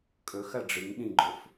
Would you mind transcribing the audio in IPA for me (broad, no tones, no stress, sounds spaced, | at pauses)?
kʼ ɵ x ɐ ɖ͡ʐ ɨ ŋ ɗ ĩ ɡ͡ǃ o f